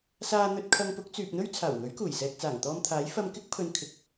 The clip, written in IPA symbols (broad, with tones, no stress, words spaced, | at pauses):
saː˧n̪ɵ˧t̚ kʰɐ˧ŋpʊ˨˥k̚ t͡syː˨p̚n̪ɵ˥ɥ t͡sʰaː˨˩wŋɵ˨˥ɥkuː˨˩j sɛː˨k̚t͡saː˨˩ŋ t̪ɔː˧mt̪ʰaː˨˥j fɐ˧mkɪ˥k̚pʰɵ˨n kʰɪ˨k̚